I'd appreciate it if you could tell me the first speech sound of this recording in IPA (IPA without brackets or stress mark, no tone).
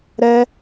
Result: ɾ